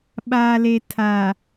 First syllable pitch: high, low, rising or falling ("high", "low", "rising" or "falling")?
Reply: low